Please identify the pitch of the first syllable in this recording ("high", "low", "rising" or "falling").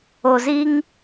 low